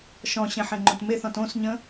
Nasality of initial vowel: nasal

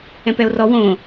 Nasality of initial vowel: nasal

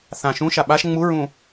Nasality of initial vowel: nasal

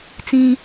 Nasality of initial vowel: nasal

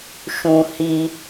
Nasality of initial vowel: nasal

